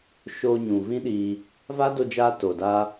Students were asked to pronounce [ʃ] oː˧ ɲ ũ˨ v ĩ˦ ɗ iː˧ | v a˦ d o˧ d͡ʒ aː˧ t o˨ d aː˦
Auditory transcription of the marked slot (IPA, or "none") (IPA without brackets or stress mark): ʃ